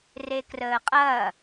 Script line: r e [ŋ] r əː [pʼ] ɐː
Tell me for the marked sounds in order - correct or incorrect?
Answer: incorrect: k, incorrect: qʼ

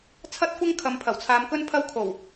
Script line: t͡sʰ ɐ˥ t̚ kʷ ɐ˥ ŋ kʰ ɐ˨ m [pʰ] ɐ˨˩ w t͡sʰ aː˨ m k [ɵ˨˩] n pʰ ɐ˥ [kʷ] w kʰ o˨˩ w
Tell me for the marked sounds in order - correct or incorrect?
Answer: correct, incorrect: ɵ˥, incorrect: none

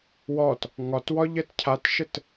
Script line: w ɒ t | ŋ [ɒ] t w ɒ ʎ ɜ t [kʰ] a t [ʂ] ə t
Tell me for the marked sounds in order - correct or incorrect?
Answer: correct, incorrect: cʰ, incorrect: ʃ

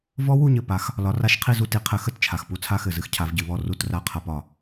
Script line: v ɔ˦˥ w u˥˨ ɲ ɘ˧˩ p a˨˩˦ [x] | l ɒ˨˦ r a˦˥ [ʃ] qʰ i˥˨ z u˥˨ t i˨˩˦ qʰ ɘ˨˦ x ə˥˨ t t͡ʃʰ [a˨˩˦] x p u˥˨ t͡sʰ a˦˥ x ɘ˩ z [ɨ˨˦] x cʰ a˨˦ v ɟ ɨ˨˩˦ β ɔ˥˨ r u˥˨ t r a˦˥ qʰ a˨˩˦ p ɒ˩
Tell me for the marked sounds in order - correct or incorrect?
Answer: correct, correct, incorrect: a˩, incorrect: ɨ˥˨

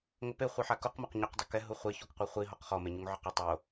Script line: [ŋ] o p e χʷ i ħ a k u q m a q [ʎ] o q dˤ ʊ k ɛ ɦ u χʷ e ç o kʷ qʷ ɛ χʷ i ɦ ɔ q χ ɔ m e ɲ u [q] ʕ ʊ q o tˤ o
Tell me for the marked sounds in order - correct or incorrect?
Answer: correct, incorrect: ɲ, incorrect: ŋ

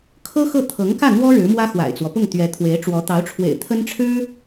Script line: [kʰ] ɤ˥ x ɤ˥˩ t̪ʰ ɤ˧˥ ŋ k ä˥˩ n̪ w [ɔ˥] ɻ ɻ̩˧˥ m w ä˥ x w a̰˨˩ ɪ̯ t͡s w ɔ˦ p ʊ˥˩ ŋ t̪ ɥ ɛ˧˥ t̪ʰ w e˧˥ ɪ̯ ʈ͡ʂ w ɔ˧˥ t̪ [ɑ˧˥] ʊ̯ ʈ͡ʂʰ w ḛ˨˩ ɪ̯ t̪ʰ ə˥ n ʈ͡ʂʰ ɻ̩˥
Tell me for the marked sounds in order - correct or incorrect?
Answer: correct, correct, correct

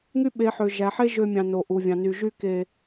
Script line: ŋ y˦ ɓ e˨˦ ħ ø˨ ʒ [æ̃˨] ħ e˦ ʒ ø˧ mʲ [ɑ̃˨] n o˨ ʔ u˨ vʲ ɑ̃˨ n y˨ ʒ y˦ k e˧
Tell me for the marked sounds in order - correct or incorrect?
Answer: incorrect: æ˨, correct

